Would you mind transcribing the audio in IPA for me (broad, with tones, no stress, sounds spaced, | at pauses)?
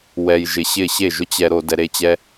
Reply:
w ɛ˧ j ʒ ɪ˧ ɕ ɪ˦˨ ɕ e˦˨ ʒ ʊ˦ t͡ɕ ɛ˧ ɾ o˧ d ɛ˧ ɾ e˦ t͡ɕ ɛ˦